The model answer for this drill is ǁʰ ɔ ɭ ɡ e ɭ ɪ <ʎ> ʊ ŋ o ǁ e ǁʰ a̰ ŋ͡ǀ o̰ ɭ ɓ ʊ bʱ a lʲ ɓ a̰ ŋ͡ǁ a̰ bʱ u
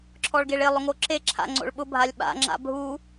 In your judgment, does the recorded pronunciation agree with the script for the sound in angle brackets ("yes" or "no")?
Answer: no